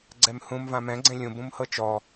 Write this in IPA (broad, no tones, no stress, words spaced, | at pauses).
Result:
ɡ͡ǀɛmhũm vãmɛ̃ ɡ͡ǀẽlʲũ bũmhɤt͡ʃɔ